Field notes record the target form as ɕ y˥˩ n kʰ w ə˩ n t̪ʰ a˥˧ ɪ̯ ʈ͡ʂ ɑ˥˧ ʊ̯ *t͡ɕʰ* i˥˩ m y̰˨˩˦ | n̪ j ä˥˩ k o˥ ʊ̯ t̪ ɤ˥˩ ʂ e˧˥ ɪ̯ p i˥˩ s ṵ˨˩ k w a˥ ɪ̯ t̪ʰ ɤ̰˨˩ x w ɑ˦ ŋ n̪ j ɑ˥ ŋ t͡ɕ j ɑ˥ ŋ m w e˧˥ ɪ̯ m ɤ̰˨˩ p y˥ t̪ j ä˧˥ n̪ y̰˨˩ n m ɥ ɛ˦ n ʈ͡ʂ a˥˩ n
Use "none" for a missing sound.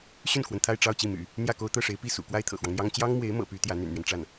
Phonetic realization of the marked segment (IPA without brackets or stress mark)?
t͡ɕ